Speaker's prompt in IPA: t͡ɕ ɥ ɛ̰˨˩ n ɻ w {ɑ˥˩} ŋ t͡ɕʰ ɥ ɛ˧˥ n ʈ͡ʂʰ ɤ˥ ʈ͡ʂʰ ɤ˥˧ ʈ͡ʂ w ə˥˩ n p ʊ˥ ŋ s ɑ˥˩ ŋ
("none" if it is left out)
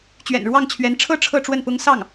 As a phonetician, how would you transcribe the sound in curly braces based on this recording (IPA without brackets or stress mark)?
ɑ˥˩